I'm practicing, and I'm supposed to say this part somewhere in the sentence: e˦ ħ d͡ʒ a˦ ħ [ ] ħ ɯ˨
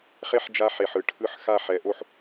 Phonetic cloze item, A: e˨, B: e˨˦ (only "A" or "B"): A